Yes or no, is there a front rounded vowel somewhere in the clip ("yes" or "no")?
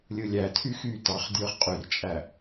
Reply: yes